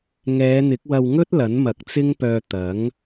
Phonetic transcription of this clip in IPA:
ŋ ɛː˨˧ n̪ ɪ˨˥ k̚ w ɐ˧ w ŋ ɵ˥ t̚ l ɐ˨˥ n m ɐ˨˥ k̚ t͡s ɪ˥ ŋ p œː˧ t̪ ɐ˨˥ ŋ

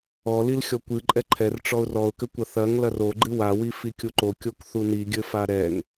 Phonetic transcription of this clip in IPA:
ɔ l i l xʲ ɔ kʷ ɨ ǃʼ ɛ ǃʰ ɛ r ʈ͡ʂ ɔ ʊ̯ r ɔ ʊ̯ k ɘ kʷ ɐ θ ɐ ŋ l ɐ r o ɡ͡ǃ ɨ w a w i f i kʲ u ǃ o kʲ o k θ u n i ɡʲ ɘ f a ɾ ɛ ŋ

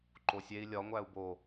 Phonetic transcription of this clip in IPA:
ǃ o sʲ e i̯ lʲ ɒ ŋʷ æ u̯ b o

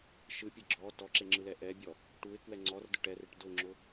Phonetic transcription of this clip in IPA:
ʃ ɯ pʲ ɘ ɡ͡ǁ ɔ t ɔ ǁ e ŋ͡ǁ ɯ l ɛ ʔ ɛ bʲ ɔ | ʈ u ɪ̯ k w ɛ ŋ͡ǀ ɔ r d ʊ ʈ ɛ r e ʈ d ʊ ŋ͡ǁ ʊ

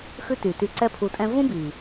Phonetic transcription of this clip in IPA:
x ʉ˦ t y˨ t y˧ ǀ ɛ˦ pʰ u˧ tʼ ɛ̃˦ v ũ˦ b i˨

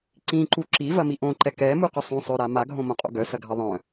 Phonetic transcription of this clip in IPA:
ǀ ĩ ǃ u ǁ i v ɐ m i ʔ õ ǃ ɛ k ɛ m u q ʏ sˤ ũ sˤ ø ɾ a m a ɡʱ õ m õ qʼ o̰ ɡ œ s ɐ ɡʱ ɐ ðˤ œ̃

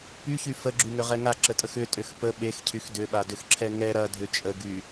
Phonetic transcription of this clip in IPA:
p y ç y f ə ɡ͡ǁ y ŋ ʏ ʁ ɛ ŋ a ǁ ə tʼ ə x ʏ tʼ ʏ x p ə ɓ e x cʰ y x d ʏ ɓ a d ʏ x ǁʰ ɛ ŋ ɛ ɾ ɐ dʱ ʏ t͡ʃʼ ə ɡ y

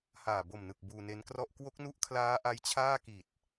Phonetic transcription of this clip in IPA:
h aː˨˩ b o˨˩ m n ɯ˨˩ k̚ b uː˧ n e˦˥ n k r ɔ˥˩ ʔ k w o˦˥ k̚ n u˦˥ ʔ kʰ l aː˦˥ ʔ a˦˥ j t͡ɕʰ aː˥˩ k i˨˩ t̚

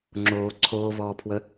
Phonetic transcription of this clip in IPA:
ŋ͡ǁ oː ǀʰ oː v ɔː pʰ w ə

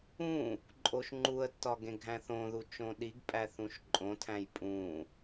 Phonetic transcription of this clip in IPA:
ũ | ǃʼ o ʃ ŋ͡ǃ u ə̯ tː ɒ ɡ ẽ ɡʱ æ̃ θ õ ð u t͡ʃ õ ɗ i ɡ pʼ æ θ ũ ʃ ǃʼ õ tʰ æ̃ j pʼ ũ

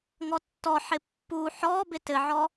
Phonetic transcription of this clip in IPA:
ŋ ɔ tː ɔ ħ ɪ pː u ħ ɔ b ɪ t ɘ ʕ ɔ

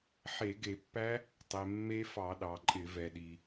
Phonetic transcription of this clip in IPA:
ħ e˧˩˧ ɡ e˧˩˧ pː æ˦˥ | tˤ e˩ mː e˦˥ f ɑ˧˩˧ ɗ ɑ˩ ǃʼ ɪ˧˩˧ v ɛ˩ ɗ i˩

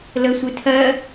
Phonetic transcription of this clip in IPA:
l ə sʷ ɨ tʰ ɜ

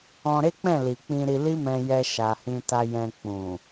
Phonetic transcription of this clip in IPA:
ɔ̃˧ ɾ e˦ k͡p ɛ̃˦˨ l i˨ k͡p ĩ˧ ɾ i˧ l i˦ m ɛ̃˧ j ɛ˧ ʃ a˨ h ĩ˧ t a˧ j ɛ̃˧ k͡p ũ˨

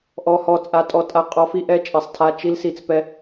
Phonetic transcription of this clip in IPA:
ʔ ɔ˨ h ɔ˨ t͡sʼ a˨ tʼ ɔ˨ tʼ a˨ qʼ ɔ˨˦ f i˨ ʔ ɛ˦ t͡ʃʼ ɛ˨ sˤ tʰ a˦ t͡ʃ i˦ l s i˨ t͡s p ɛ˦

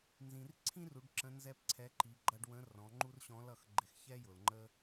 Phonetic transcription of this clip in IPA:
n z ĩ˩ r ǀʰ ĩ˥ r u˩˧ ɖ ǁ ə̃˧˥ n z ɛ˥ p ǀʰ ɛ˧˥ ǃ i˩˧ ɡ͡ǃ ʌ˧ ɖ w ə̃˧˥ r ɔ̃˩˧ ŋ͡ǃ u˥ r ɕ ɔ̃˧˥ l ʌ˩˧ x ɡ͡ǃ ɪ˧ x ç ɛ˥ j ʊ˩ l ŋ͡ǃ ə˥

